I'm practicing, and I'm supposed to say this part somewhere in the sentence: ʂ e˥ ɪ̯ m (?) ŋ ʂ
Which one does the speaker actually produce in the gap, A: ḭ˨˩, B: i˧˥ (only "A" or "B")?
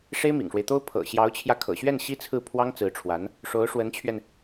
A